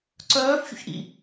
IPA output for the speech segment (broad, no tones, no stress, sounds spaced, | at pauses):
ǀ œː f ç ṵ ç ʔ ḭ